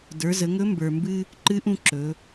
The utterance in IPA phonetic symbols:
də˞˩˧zə˩˧ŋɵ˧˥ mbə˞˩mbɨ˧ | ǃɨ˧˥ʔũ˧ ǁɵ˩˧

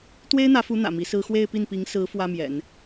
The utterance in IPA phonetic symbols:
t̪we˥ɪ̯n̪ä˧˥fu˧˥ n̪ä̰˨˩mi˧˥sɹ̩˥ xwe˥˧ɪ̯pi˥˩npi˧˥ŋsɹ̩˧˥ fwä˥mjɛ̰˨˩˦n

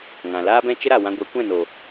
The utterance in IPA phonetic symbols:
ŋã˨ laː˦bɛ̃˦t͡ʃə˦ɾa˨ wã˧ɡʷɛ˨˦kʷɛ̃˦˨no˨

